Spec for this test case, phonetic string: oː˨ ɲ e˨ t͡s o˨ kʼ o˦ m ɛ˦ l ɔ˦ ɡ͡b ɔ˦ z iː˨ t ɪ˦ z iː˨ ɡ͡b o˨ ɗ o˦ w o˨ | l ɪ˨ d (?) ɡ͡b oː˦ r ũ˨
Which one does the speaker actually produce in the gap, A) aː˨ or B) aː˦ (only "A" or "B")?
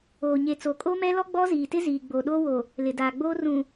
A